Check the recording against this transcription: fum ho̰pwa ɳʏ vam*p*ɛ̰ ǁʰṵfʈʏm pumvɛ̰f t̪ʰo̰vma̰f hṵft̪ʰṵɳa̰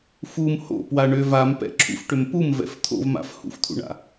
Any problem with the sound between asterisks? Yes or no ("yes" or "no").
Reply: no